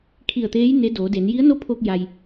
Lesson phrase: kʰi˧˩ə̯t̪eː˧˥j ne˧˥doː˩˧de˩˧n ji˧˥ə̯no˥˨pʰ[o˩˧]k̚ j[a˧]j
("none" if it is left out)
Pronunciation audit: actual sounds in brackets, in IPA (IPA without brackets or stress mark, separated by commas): o˧, a˧